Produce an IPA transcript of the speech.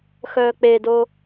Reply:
xœːk͡pedo

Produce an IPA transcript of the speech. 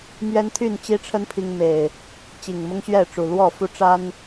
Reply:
mɥɛ˦nt̪ʰy˥˨nt͡ɕi˦ʈ͡ʂʰə˦n pʰi˦ŋme˨˩ɪ̯ | t͡ɕi˨˩ŋmʊ˦ŋɕɥɛ˥˨ʈ͡ʂu˨˩ lwɔ˥˨ fu˦ʈ͡ʂa˦n

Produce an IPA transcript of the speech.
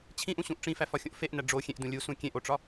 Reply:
t͡ɕʰĩʔũɕũʔ ʈ͡ʂĩfæfɒxʲõʔ feʔnæ ɖ͡ʐo xʲẽʔdũ lʲusũ kʲẽʔoʈ͡ʂɒ

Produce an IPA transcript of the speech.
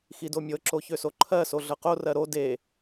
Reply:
xidomʲɤǁo çøsoǃʰɜso ɮɤqorɜ ɾo de

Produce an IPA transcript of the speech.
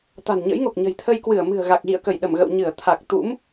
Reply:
t̪a̤˨˩nɲə̰˧˥jŋo˨˩k̚ ɲə̤˨˩jt̪ʰə˧jkwɨ˧˩ə̯ mɨ̤˨˩ə̯ɣa˨˩k̚ɣḭ˧˨ə̯kə˧˩j ɗə˧˩mɣə̰˧˨w ɲɨ˧˩ə̯ t̪ʰa˨˩k̚t̪ṵ˧˥m

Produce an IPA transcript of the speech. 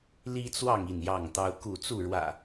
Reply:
li˦t͡swɑ˥˨ŋ i˥˨njɑ˥˨ŋt̪ɑ˦ʊ̯ ku˥˨ t͡su˥˨ɻwä̰˨˩

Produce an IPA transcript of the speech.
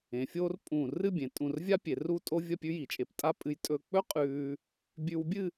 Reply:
ẽ˩˧fʲoː˥rpʼũː˧˩ rɨ˥˧bʲẽ˩˧tʼũ˧˩rvʲa˥ pʲe˩˧ru˥˧tʼo˥vʲɐ˥˧ pʲʉ˥ji˩˧t͡ʃʼe˧p tʼa˥pʼɨ˧j tʼɵ˧k͡pɵ˥ qʼʉː˧ | bʲʉ˧wbʲɨ˥˧

